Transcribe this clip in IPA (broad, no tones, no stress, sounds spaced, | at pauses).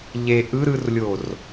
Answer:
ʎ e ʔ ɯ ɾ ɯ r lʲ o r